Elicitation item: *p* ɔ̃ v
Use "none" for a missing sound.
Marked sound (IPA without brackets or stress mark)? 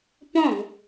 p